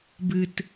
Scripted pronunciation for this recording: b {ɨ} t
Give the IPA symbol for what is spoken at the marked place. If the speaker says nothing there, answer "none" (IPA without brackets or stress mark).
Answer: ɨ